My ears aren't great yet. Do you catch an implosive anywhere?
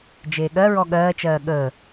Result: yes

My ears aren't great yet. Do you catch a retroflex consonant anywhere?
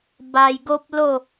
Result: no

